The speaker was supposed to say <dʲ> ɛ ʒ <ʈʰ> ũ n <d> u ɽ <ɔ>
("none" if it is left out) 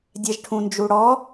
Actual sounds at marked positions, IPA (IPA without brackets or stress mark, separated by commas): dʲ, ʈʰ, d͡ʒ, ɔ